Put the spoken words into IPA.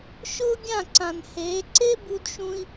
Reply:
ʃ ʊː˦ ɡʲ ã˦˨ ǀ ã˨ n h eː˨˦ ǀ e˦ b u˧ d ʃ ũ˧ i̯

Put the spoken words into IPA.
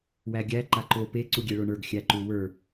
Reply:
w æ ɡʲ æ ǃ a ǃ o p e ǀ u ɡʲ e ɭ o ɳ ə˞ ɡ xʲ æ ǃ u w ə˞

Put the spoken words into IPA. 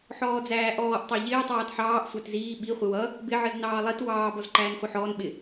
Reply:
ħ ɔː d͡z æː ʔ ɔː ʔ tˤ ɑ ʎ ɪː tˤ ɑː t ħ ɑː ʔ sʷ æ t z iː ɓ i χʷ ɪ w ʌ | b ɪ ʕ ə z n ɑː lˠ i t w ɑː b ɔ z ǃ æː n χʷ ʌ ħ ɔː n ɓ ɪ

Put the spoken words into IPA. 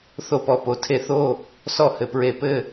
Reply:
θ o˥˨ p ɔ˥˨ p o˧ tʰ e˥˨ θ o˥˨ | s ɔ˥˨ h ɘ˧ p ɹ e˧ p ɘ˥˨

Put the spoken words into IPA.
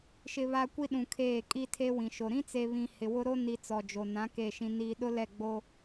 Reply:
ʃ ɪ˨ β a˨ kʷ i˦ ɗ ũ˨ kʰ eː˦˨ kʼ i˦ tʰ e˦ w ĩ˨ ʃ o˨ ɾ ĩ˦ t͡s e˨ β ĩ˨ h ɪ˨ w ʊ˦ ɾ o˦ n i˨ t͡s ɔ˨ d͡ʒ o˨ n ã˨˦ k e˦˨ ʃ ĩ˦ n iː˦ ɗ ʊ˦ l ɛ˦˨ ɡ͡b o˦

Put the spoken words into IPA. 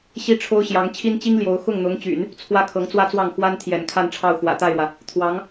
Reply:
ɕ i˥ ʈ͡ʂʰ o˥ ʊ̯ ɕ j ɑ˧˥ ŋ t͡ɕʰ i˥ n t͡ɕ i˥ ŋ l j o˧˥ ʊ̯ x ʊ˥˩ ŋ n̪ ʊ˧˥ ŋ t͡ɕ y̰˨˩˦ n | t͡sʰ w ä˥ kʰ ɤ˧˥ ŋ t͡s w ä˥ t͡s w ɑ˥˩ ŋ x w a˥ n t̪ʰ j ɛ̰˨˩ n kʰ a˥˧ n ʈ͡ʂʰ ɑ˥˩ ʊ̯ x w ä̰˨˩ t̪ a˥˩ ɪ̯ ɻ w ä˩ | t̪ʰ w ɑ˧˥ ŋ

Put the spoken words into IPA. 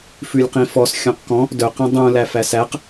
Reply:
f ʉ lʲ q ĩ f ɔ s xʲ ɔ̃ q k ɔ̃ | d œ q ĩ dˤ ũ l æ f æ s æ q

